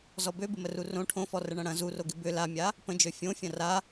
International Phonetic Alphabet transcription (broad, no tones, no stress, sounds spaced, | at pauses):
z ɔ b ø b ɪ m ə r u r õ ʈʰ õ f ɔ r ə ɳ ɐ̃ ɽ ɐ̃ z u r o ɡ ɪ b ʏ l a mʲ a | p ə̃ d͡ʒ ø fʲ õ fʲ ɐ̃ r a